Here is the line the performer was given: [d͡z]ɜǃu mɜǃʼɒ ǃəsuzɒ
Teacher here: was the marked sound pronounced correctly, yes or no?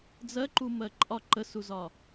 yes